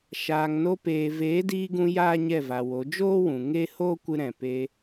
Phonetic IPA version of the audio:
ʃ aː˨ ŋ n o˧ p eː˨ v eː˨˦ d iː˧ ɡ ũ˧ j aː˦ ɲ ɛ˦˨ v a˨ w o˨˦ d͡ʒ oː˦ w ũ˨ ŋ e˦ h oː˦ kʷ ɨ˧ ɾ ɛ̃˨ p e˧

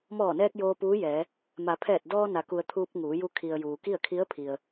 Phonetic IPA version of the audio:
m ɔː˧˩ n ɛː˧ k̚ j oː˧ p uː˧˥ j ɛː˩˧ | m a˩˧ pʰ ɛː˧˩ t̚ d ɔː˧ n a˩˧ k u˩ ə̯ t̪ʰ uː˧ p̚ ŋ uː˩˧ j u˧ kʰ i˩ ə̯ j uː˩ k i˥˨ ə̯ kʰ i˧˥ ə̯ pʰ i˩ ə̯

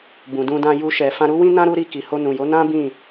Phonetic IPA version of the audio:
b ũ˨ d ũ˧ d ã˧ j u˧ ʃ ɛ˨ f ã˧ ɾ u˦ w ĩ˦ n ã˦ ɾ u˦ ɾ i˦˨ k i˨ h o˧ n ũ˨ j o˨˦ n ã˦ b ĩ˦˨

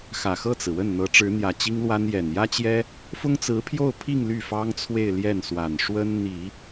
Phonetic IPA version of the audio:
x ä˨˩ x ɤ˥˩ t͡s ɹ̩˩ w ə˥˩ n n̪ ɤ˧˥ ʈ͡ʂ ɻ̩˧˥ n̪ j ä˨˩ t͡ɕ i˥ ŋ l w a˥ n j ɛ˨˩ n j ä˥ t͡ɕ j ɛ˥ | f ʊ˥ ŋ t͡s ɹ̩˧˥ pʰ j o˥˧ ʊ̯ pʰ i˥˧ ŋ l y˥˩ f ɑ˥ ŋ t͡sʰ w e˥˧ ɪ̯ l j ɛ˥˩ n s w a˨˩ n ʂ w ə˥ n n̪ i˨˩˦

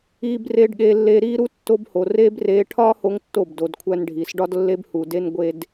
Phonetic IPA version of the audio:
iː˧ b r eː˧ ɖ ɠ eː˧ lː eː˧ ɾ iː˦ ɾ u˦ tː o˧ b h o˨ r eː˦ b r eː˧ ʈʰ ɒː˦ h o˦ ŋ tː o˦˨ b d o˧ d kʷʰ æ˦ n ɖʱ iː˧ s ɖ ɒ˦ d lː e˦ b h u˧ d e˦ n ɡʷ e˧ d

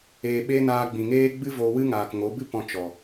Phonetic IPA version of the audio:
eː˨ ɓ e˦ n aː˧ ɡ͡b ĩ˨ ŋ eː˦ ɡ͡b ɨ˦ v oː˧ w ɨ˦ ŋ aː˨ k ŋ o˨˦ b ɨ˦ p ɔ̃˧ t͡ʃ ɔ˨

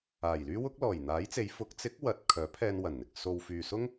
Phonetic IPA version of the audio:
aː˨˩ j l yː˥ w ʊ˥ k̚ l ɔː˨˩ j n̪ aː˨˥ j t͡s e˨˧ j f ʊ˨˥ k̚ t͡s ɪ˨˥ k̚ w ɐ˨ t̚ kʰ œː˨˥ pʰ ɛː˧ n w ɐ˨˩ n n̪ ɪ˨ k̚ s o˨ w f yː˨ s ʊ˥ ŋ

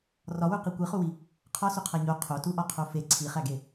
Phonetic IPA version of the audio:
r ɒ w u q i kʷ i χ u w i | qʰ ɒ s u qʰ æ ɲ o qʰ o t u ʔ ɒ qʰ o f e ǀʰ i χ æ ɡ e

